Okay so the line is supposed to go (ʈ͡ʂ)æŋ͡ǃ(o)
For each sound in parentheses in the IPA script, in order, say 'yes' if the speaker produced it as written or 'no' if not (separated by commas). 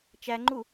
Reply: no, no